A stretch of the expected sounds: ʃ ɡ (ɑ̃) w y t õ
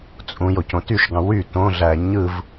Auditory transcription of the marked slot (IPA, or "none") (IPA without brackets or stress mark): ɑ̃